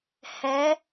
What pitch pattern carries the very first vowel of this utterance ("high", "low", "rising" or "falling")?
rising